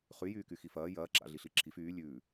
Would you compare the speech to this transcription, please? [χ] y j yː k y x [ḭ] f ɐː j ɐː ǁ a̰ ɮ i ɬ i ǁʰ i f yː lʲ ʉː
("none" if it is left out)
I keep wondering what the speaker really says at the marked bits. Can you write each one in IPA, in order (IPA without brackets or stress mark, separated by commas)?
χ, i